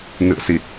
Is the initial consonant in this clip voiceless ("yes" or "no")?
no